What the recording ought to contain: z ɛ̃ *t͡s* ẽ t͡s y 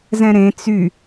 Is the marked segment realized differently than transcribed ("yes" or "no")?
yes